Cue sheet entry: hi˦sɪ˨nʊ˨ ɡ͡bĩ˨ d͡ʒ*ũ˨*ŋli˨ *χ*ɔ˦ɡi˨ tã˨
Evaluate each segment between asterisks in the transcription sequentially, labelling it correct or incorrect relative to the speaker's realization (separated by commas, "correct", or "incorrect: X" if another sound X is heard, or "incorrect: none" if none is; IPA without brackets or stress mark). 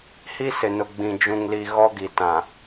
correct, incorrect: ɣ